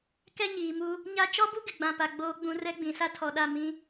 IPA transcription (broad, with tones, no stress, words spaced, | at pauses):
kɛ˦ɲiː˨mu˦ | ɲa˦ t͡ʃɔ˦bu˦ ɡɪ˨ɡ͡bã˨pa˨ ɡ͡boː˨ɡ͡bũ˨ rɛ˦ɡ͡bĩ˨ sa˦tʰɔ˨ɗa˦˨ mĩ˦